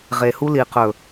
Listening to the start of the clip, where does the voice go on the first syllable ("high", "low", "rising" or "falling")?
low